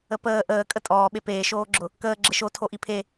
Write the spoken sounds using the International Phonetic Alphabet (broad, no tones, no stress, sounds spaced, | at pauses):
ə p əː ʔ əː kʼ ə tʼ ɔː ɓ e p eː ʃ oː ɡ͡ǁ ʊ | k əː ɡ͡ǁ ə ʃ o tʰ o ʔ i pʰ e